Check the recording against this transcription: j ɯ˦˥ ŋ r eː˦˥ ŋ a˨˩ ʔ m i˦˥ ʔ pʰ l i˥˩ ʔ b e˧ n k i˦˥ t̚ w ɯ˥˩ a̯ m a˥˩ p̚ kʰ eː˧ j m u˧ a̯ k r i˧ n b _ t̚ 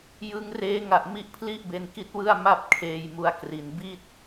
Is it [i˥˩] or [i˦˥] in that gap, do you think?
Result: i˥˩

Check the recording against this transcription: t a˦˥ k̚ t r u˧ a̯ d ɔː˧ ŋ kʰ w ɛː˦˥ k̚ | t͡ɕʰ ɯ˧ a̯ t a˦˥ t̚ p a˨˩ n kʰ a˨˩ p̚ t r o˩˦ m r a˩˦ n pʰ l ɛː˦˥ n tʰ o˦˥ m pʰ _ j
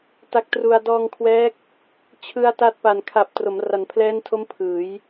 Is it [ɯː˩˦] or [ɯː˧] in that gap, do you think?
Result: ɯː˩˦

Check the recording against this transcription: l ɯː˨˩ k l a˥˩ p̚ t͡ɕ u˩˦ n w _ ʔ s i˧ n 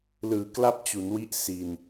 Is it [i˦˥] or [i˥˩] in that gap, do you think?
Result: i˦˥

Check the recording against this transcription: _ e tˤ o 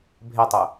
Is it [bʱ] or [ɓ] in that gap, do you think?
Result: bʱ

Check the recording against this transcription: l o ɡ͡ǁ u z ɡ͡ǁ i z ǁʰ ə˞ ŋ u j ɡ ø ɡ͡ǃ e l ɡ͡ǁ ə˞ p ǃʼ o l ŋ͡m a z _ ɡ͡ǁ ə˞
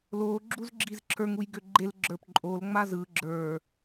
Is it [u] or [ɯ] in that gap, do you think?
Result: ɯ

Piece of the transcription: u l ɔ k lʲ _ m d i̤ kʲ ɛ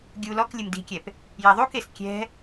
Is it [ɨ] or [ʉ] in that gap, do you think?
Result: ɨ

